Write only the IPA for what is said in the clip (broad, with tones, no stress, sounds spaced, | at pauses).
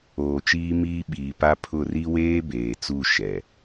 oː˨ t͡ʃ iː˦ m iː˦ ɓ iː˨ p a˦ pʰ ʊ˦˨ r i˦ w eː˦ b eː˨ t͡s u˦˨ ʃ ɛ˨